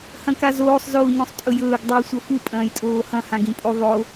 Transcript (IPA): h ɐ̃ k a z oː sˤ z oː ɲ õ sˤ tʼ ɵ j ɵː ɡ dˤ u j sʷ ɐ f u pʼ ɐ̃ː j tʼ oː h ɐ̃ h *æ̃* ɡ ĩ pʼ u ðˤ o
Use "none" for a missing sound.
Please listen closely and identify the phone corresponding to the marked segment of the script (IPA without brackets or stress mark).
ã